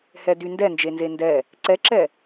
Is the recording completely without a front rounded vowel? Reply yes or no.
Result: no